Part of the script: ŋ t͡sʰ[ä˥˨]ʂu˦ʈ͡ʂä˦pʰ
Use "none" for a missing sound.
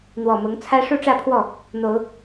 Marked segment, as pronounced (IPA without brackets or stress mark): ä˦